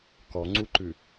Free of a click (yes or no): no